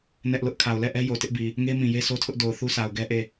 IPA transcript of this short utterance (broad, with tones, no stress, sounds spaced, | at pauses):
n ɛ˦ ʔ l ʊ˦ ʔ kʰ a˨ ʊ̯ l ɛ˦˨ ʔ ɛ˦ j o˨ t ɪ˦ ʔ b i˨ | ŋ e˦ m ĩ˨ j e˦ sʰ o˦ tʰ ʊ˦ ʔ d o˨ ʊ̯ θ u˦ sʰ a˨ ʊ̯ ɡ ɛ˦ ʔ e˦˨